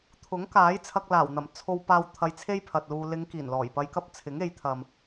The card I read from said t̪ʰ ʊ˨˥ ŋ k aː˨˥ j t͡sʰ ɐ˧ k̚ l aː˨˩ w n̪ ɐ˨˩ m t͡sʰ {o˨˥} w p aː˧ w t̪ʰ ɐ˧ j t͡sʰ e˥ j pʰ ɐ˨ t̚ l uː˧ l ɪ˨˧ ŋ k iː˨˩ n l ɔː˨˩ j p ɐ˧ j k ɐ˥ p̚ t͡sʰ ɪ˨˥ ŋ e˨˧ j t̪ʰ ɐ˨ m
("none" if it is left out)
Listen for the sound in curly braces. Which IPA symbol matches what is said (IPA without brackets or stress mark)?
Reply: o˧